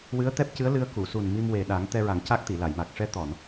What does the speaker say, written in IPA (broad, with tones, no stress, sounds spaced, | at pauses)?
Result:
w ɨ˧˥ ə̯ t̪ ɛ˦˥ p̚ c ɨ˧˥ ə̯ l ɨ˧ ə̯ k u˨˩˨ s u˨˩ n m i˧ m w e˨˩ ɗ a˨˩˦ ŋ t̪ ɛ˧ ɹ a˨˩˦ ŋ c a˦˥ k̚ t̪ i˨˩˨ l a˨˩˨ j m a˨˩ k̚ ʂ ɛ˧˥ t̪ ɔ˨˩˨ n